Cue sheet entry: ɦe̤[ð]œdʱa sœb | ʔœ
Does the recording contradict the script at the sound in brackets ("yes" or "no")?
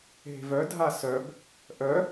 yes